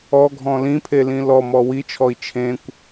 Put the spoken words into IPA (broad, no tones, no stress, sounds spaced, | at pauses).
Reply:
ɔ ɡʱ ɔ̃ l ĩ pʰ e l ĩ l ɔ m ɔ w i t͡ʃʰ ɔ i̯ t͡ʃʰ ẽ kʷ